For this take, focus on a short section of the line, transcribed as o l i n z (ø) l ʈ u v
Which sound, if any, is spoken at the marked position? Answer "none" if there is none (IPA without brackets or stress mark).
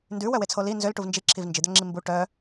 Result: ø